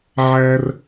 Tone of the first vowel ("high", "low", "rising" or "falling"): high